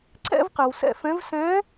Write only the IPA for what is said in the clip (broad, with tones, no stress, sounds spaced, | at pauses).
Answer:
ǀ ɛ̰˧ v q ɪ˩ w s ɛ̰˧ f ɛ̃˧˥ v s ɛ̃˧˥